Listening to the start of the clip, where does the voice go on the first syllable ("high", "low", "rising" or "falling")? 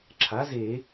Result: rising